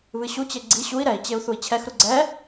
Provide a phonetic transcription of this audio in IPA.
βɨɕut͡ɕe ɡ͡ǀi ɕui̯ ɾɛi̯t͡ɕeu̯ θui̯t͡ɕʰɛxɾu ɡ͡ǀɛ

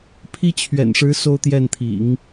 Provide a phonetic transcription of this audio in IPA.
pʰi˥t͡ɕʰɥɛ̰˨˩nʂɻ̩˧˥ so˥˧ʊ̯t̪jɛ˥˩nt̪ʰḭ˨˩˦ŋ

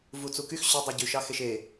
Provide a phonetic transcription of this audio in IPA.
vut͡sukyx ɕʏ dˤuɟʉʃ ɑxeʃe

